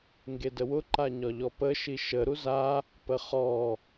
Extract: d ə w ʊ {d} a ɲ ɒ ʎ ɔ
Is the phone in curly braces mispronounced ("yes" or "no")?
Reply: yes